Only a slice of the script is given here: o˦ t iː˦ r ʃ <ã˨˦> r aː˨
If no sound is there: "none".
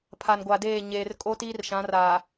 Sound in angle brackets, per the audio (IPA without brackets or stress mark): ã˨˦